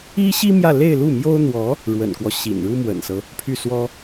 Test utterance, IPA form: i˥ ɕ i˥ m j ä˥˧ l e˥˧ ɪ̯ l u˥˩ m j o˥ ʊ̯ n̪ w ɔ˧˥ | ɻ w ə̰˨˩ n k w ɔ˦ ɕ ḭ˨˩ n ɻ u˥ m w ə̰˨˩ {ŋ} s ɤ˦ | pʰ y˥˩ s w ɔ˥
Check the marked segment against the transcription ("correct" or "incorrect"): incorrect